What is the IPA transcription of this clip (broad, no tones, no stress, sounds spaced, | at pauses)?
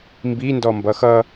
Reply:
m b i n d ɔ m b ʌ x ʌ